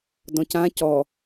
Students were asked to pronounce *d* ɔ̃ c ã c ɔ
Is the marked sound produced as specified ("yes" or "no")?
yes